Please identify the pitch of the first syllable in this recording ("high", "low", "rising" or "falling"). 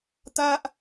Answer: high